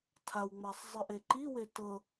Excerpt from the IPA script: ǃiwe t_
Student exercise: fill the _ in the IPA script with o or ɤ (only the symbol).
ɤ